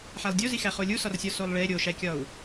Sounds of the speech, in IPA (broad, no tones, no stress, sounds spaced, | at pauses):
ħ æ lˠ dʲ o z i x æ χ o lʲ u s ɒ r sʲ ɒ s o lˠ ɭ e ɾʲ o ʃ æ kʲ ɒ u̯